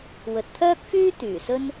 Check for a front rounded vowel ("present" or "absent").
present